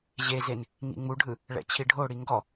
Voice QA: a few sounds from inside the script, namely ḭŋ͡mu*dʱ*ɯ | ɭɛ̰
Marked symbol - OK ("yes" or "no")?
no